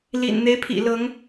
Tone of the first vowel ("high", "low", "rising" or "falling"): low